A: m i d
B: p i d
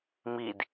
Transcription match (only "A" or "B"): A